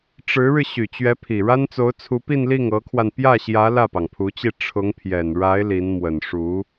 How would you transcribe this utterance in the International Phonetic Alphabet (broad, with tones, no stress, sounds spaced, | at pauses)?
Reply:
ʈ͡ʂ ɻ̩˧˥ ɻ ɻ̩˧ ɕ y˨˩ t͡ɕ ɥ ɛ˧˥ pʰ i˨˩ ɻ a˥ n t͡s o˧˥ ʊ̯ t͡sʰ u˧˥ p i˥˧ n l i˥˩ ŋ ɤ˧˥ kʰ w a˧ n p j ä˥˩ ɕ j ä˧˥ l ä˥˩ p ɑ˩ ŋ pʰ u˧˥ t͡ɕ i˥˩ ʈ͡ʂʰ ʊ˧˥ ŋ pʰ j ɛ˨˩ n ɻ a˧˥ ɪ̯ l i˧˥ n m w ə˨˩ n ʂ u˧˥